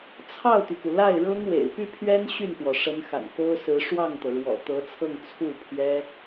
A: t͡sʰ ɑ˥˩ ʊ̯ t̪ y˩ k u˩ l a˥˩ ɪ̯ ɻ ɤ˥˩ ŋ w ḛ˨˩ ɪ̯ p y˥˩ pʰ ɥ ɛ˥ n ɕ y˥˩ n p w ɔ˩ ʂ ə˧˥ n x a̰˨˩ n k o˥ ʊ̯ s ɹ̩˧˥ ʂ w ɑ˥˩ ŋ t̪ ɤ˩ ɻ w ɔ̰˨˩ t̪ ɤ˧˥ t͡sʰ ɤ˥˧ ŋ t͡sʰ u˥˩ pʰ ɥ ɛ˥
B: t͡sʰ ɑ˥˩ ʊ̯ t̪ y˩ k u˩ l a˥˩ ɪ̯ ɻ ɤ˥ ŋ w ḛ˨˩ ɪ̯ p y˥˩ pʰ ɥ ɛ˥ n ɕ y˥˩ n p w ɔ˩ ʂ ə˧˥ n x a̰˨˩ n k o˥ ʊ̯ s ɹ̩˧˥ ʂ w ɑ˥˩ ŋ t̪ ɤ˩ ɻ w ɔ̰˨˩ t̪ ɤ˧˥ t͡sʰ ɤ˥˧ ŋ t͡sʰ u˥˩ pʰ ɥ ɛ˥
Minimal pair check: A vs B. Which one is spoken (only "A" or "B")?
B